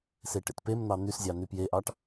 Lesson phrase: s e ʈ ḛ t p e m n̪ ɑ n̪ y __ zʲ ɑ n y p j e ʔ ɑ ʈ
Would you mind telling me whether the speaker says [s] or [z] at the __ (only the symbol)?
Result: s